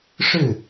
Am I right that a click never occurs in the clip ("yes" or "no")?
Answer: yes